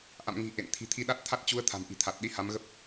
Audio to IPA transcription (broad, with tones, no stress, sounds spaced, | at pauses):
ʔ a̰˧˨ m ŋ i̤˨˩ ʔ ḛ˧˨ n t̪ʰ i̤˨˩ t̪ʰ i˧ ɗ a˦˥ t̚ t̪ʰ a˦˥ t̚ t͡ɕ u˨˦ ə̯ t̪ʰ a̤˨˩ m ʔ i̤˨˩ t̪ʰ a˨˩ t̚ ɗ i˨˦ h a˨˦ m ɣ ə˦˥ p̚